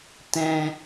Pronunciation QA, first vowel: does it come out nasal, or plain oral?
nasal